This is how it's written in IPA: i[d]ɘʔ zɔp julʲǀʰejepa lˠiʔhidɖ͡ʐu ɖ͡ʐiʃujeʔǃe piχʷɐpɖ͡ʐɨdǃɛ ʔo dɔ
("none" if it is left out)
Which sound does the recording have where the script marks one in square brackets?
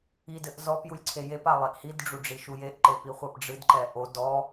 d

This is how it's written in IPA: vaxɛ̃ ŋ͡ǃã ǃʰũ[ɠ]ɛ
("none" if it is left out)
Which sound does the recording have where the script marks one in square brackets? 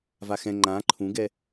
ɡ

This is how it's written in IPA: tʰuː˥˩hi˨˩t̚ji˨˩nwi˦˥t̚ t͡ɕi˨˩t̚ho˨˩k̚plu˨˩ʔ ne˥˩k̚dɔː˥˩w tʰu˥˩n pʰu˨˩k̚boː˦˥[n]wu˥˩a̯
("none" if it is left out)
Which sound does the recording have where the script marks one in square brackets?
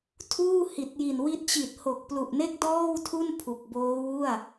none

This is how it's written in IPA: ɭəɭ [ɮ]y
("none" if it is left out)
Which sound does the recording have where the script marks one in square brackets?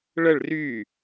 r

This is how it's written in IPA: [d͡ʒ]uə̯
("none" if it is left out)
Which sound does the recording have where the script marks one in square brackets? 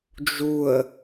d͡ʒ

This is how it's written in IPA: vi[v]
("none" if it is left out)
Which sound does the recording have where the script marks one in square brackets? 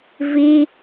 none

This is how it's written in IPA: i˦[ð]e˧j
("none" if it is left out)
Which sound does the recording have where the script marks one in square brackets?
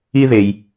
ð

